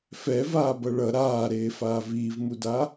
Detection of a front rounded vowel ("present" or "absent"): absent